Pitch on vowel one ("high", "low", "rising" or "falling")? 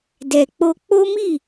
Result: low